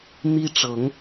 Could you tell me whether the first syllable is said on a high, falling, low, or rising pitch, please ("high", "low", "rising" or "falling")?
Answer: high